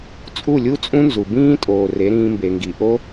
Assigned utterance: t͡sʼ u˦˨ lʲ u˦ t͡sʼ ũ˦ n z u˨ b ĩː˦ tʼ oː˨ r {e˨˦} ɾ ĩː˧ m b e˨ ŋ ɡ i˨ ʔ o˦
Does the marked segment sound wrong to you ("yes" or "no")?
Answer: no